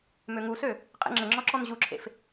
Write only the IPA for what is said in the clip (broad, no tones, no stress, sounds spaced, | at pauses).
m ø ŋ u s ø | qʼ ḛ ŋ͡ǁ ə ŋ͡ǁ ɔ ǁ ɔ n ʑ u ǁʰ ḛ f